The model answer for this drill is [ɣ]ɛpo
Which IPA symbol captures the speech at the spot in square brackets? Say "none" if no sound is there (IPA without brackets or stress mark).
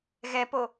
ɣ